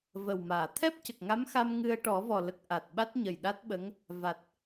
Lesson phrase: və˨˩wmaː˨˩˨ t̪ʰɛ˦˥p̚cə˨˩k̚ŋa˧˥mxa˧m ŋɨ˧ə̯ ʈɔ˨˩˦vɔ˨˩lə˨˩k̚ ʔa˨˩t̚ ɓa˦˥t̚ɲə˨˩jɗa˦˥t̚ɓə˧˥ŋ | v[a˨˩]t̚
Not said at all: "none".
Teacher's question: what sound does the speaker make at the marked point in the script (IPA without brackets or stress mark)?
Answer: a˨˩